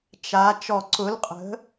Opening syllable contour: rising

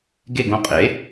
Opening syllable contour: falling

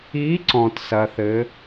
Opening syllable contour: rising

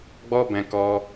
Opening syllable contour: high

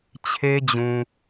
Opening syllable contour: high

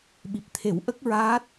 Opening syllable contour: low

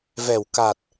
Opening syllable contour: low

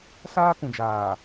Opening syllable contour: high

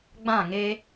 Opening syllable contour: falling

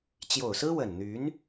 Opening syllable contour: low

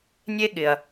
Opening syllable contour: high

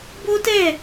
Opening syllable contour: high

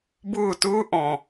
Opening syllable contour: falling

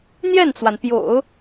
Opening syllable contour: falling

